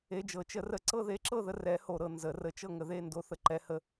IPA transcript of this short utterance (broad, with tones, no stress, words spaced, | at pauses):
e˧˥d͡ʒɤ˩˥ t͡ʃə˧˥rə˥˨ ǀɤ˥˨ðe˧˥ǁɤ˥˨ðə˧ rɛ˧˥ho˧ ɾɤ˧nzə˨˩˦rə˧˥t͡ʃɤ˥˨ ŋə˧ðe˥˨ndo˧˥ θə˧ǃɛ˧˥hə˧˥